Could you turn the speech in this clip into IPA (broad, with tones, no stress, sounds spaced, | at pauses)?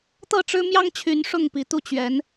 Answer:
t̪ ɤ˥˨ ʈ͡ʂ ɻ̩˦ m j ɑ˦ ŋ t͡ɕʰ y˨˦ n ʂ ʊ˥˨ ŋ p i˨˦ t̪ u˥˨ t͡ɕ ɥ ɛ˨˦ n